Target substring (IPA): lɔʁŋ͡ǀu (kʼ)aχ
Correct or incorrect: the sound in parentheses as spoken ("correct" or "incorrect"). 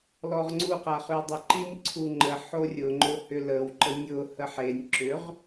incorrect